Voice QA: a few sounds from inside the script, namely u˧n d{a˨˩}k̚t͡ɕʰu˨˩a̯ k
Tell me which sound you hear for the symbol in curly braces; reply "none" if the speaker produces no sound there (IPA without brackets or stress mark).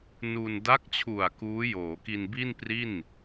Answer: a˦˥